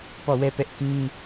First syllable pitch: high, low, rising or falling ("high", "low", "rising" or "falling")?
falling